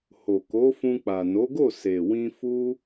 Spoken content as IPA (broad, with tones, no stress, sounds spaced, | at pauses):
h o˨ k o˨˦ f ũ˧ k͡p a˨ n o˨˦ ɡ o˦˨ s e˨ w ĩ˧ f u˦